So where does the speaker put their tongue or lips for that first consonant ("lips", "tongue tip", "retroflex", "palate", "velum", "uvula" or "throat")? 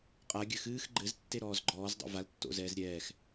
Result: uvula